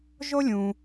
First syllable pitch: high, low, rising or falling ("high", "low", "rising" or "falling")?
high